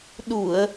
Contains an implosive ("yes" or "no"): yes